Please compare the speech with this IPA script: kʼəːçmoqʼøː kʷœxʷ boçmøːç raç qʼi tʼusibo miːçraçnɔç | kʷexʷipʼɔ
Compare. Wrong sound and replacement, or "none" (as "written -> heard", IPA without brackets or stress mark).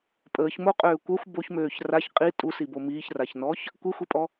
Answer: kʼ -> pʼ